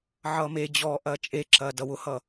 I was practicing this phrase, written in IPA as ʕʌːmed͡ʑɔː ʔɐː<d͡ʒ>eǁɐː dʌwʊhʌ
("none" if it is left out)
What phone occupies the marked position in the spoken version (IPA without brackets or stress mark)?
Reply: t͡ʃʼ